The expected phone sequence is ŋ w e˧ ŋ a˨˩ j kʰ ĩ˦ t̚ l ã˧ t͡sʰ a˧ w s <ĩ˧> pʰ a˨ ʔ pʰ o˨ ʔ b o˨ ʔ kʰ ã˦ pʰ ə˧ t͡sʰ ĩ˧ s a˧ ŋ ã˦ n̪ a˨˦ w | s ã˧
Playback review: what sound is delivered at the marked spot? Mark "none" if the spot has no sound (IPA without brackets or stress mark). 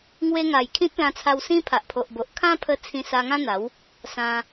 ĩ˦